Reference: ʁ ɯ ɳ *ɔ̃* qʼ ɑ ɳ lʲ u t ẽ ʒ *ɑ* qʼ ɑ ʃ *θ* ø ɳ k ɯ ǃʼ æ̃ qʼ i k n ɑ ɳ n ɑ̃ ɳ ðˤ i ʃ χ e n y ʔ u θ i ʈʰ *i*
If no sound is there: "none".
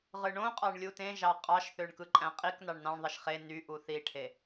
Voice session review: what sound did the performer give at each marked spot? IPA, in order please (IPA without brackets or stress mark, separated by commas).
õ, ɑ, θ, e